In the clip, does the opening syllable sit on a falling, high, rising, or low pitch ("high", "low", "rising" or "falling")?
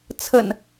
low